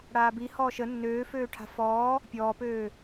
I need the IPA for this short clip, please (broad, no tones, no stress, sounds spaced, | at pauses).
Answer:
ɽ aː b i h ɔː ʃ ə nː øː f øː ʈʰ a̤ f ɔː | pʲ ɔː p øː